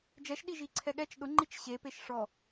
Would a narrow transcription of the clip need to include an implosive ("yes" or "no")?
yes